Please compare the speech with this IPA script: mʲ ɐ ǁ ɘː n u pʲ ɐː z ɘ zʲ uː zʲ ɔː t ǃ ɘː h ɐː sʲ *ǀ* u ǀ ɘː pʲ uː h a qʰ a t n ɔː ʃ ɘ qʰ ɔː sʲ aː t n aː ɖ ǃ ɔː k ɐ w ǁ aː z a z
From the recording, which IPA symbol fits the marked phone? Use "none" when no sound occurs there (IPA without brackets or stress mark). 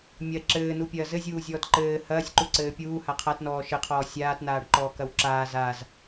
ǃ